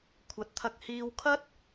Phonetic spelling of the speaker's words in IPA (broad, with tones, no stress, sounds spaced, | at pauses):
kʷʰ ɐ˨˥ t̚ t̪ʰ ɐ˧ k̚ h iː˧ w kʰ ɐ˥ t̚